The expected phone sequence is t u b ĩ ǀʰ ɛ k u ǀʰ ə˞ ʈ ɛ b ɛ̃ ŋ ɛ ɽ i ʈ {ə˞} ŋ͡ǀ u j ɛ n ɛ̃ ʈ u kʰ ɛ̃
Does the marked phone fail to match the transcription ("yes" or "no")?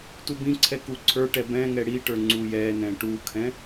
no